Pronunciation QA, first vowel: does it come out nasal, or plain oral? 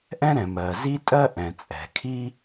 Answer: nasal